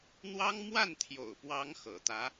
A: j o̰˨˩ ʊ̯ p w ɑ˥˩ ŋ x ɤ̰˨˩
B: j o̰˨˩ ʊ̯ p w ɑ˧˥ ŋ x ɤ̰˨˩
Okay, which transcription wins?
B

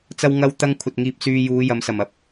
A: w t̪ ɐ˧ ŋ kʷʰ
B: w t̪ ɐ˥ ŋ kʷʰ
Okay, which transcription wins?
B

